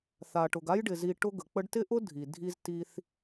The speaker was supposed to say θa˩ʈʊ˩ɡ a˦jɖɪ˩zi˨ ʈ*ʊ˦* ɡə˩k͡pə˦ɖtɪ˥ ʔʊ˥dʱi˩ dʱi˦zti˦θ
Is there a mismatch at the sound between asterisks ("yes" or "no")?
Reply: no